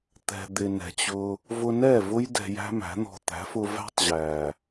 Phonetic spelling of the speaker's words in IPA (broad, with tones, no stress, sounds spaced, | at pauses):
t̪ ɛ̤˨ d̪ ɪ˨ n ɛ̤˨ t͡ɕ ʊ˧ | v ʊ˧ n ɛ˦˨ v ʊ˦ j d ɛ̤˧ j æ̤˦ m æ̤˨˦ n̪ ɔ̤˧ t̪ æ̤˨˦ f ʊ˧ v æ̤˦ tˤ ʑ æ˨